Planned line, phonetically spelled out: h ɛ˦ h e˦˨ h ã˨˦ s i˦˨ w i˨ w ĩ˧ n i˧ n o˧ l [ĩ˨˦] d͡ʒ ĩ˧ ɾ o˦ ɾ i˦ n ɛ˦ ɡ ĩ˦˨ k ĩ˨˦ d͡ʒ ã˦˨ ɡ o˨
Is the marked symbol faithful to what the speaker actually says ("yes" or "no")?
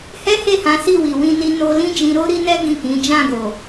no